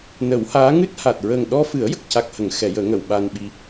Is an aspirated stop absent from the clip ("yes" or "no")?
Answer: yes